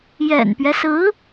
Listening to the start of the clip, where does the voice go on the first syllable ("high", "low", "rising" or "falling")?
low